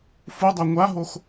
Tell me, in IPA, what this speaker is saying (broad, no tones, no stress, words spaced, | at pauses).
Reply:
fudˤa ŋʷaɦox